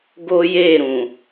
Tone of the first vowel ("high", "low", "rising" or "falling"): high